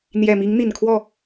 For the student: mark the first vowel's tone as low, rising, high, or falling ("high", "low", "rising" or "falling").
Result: low